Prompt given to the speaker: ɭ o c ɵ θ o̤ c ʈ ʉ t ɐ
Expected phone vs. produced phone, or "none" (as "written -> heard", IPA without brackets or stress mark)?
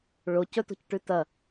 θ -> t